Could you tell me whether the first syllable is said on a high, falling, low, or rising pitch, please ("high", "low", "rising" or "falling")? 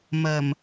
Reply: low